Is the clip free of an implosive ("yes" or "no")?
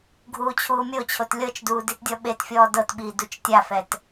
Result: no